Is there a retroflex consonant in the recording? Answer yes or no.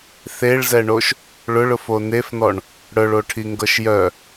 yes